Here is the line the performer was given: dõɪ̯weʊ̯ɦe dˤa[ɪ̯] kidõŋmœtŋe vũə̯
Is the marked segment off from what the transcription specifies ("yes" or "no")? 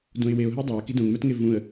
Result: no